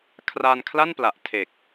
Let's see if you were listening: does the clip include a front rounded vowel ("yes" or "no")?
no